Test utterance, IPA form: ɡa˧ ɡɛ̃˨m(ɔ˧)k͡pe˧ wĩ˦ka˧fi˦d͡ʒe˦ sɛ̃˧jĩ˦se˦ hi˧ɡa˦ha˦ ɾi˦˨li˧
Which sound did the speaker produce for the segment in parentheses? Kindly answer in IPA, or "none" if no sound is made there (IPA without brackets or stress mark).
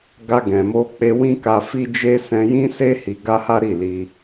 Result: o˧